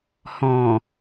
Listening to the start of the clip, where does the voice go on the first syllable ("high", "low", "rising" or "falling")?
low